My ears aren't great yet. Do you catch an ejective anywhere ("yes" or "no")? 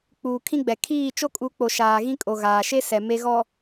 yes